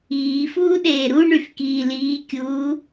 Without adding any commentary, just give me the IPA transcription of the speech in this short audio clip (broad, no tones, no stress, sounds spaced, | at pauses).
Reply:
iː f uː ɗ eː ɾ u ɳ y f k iː l iː kʲ uː